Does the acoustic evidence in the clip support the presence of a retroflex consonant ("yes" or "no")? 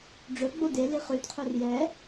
yes